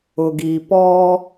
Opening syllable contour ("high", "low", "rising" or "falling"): low